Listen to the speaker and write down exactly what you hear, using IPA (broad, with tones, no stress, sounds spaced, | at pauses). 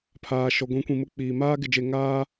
pʰ aː˨ ʃ ɔ˨ ɡʷ ĩ˨˦ kʷ ĩ˨ m ʊ˦ k͡p iː˨ m aː˦ ɡ ɪ˨ d͡ʒ e˨ ŋ aː˦